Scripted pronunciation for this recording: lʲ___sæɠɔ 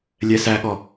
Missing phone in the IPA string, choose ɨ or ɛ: ɛ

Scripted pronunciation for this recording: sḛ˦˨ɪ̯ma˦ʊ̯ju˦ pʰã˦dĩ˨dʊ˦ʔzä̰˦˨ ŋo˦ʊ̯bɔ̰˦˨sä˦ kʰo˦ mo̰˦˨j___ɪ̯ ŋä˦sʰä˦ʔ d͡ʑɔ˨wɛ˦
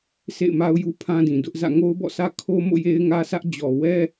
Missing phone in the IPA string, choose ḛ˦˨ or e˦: e˦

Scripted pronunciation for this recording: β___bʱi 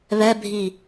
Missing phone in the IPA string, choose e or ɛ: ɛ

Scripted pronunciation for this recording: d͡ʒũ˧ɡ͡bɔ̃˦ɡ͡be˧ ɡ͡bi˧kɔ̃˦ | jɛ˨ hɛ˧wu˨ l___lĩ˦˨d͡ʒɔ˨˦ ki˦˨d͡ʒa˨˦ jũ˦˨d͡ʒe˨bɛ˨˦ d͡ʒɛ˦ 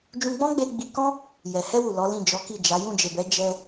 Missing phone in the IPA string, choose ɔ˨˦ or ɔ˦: ɔ˨˦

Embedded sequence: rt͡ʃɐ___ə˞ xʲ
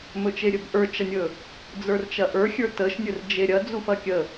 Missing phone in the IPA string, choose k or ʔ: ʔ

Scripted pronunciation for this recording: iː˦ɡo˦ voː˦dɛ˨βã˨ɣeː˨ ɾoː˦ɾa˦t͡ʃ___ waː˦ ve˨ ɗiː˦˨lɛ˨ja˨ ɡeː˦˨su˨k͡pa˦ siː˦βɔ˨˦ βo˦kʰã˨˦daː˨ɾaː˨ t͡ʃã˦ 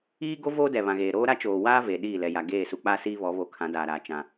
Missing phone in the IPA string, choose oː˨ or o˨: oː˨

